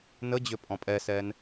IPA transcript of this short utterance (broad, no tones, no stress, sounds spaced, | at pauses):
n ə d͡ʑ ʏ pʼ ɔ̃ pʼ ɛ s ɛ n